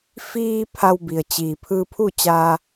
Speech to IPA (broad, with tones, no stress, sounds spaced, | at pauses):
f iː˧ pʰ a˧ w b i˩ ə̯ t͡ɕ iː˩ pʰ ɯː˧ pʰ uː˥˨ t͡ɕ a˧